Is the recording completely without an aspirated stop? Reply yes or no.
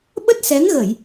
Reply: yes